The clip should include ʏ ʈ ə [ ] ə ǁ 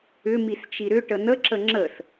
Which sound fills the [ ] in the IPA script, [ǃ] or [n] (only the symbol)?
n